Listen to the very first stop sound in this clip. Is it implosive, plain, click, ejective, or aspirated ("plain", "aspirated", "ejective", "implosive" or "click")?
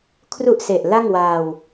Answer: aspirated